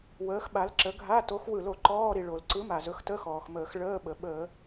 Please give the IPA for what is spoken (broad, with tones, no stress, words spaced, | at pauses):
wəː˨˥xɓa˨˥lǁə˨˥ ɡʱa˧˥˧to˨˥x wɯ˧˩˧lo˧˩˧ ǃɔː˧˥˧ɾi˩ ɭo˩lǀɯ˨˥ma˩ zɵ˨˥xtə˧˥˧xɔː˩xməː˧˩˧x ɭəː˧˥˧ɓə˩ ɓəː˧˩˧